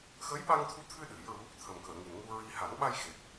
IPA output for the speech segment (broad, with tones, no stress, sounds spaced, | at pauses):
x ə˧˥ j ɓ a˧ ŋ t̪ʰ u˧˥ t̪ʰ ɨ˧ ɗ ɨ˨˩˦ j ɹ u˧˥ | t̪ʰ ə˨˩ m k əː˨˩˨ ŋ i˨˩ n ŋ u˧ ɹ i˧ h a˨˩˦ n ɓ a˧ j x e˨˩ t̚